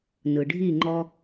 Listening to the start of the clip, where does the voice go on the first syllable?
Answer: low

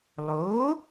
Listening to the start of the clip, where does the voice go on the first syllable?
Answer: rising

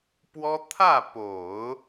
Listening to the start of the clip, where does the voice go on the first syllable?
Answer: high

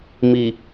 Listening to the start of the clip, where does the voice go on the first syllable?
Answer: low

